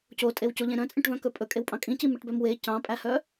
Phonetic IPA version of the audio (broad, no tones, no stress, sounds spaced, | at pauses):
c o tʼ e w c o ʎ ẽ ɾ œ̃ t͡sʼ ẽ ʈ v œ̃ k ɵ pʼ ɵ kʼ e w pʼ ɑ̃ kʼ ĩ c i m e ʈ b œ m w e c ɑ̃ pʼ æ h œ